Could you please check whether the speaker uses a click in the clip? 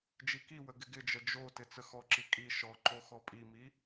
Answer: yes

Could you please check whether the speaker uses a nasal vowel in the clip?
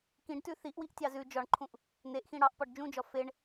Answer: yes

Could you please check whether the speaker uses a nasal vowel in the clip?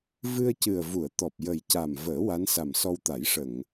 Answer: no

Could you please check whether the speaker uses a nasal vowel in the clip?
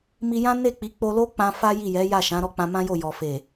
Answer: yes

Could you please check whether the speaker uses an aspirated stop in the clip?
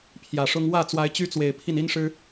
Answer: yes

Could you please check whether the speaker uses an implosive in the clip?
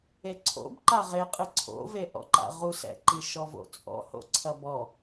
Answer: no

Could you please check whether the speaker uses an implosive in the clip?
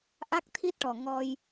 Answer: no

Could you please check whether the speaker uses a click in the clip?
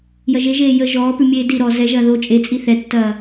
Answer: no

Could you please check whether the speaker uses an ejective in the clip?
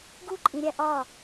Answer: yes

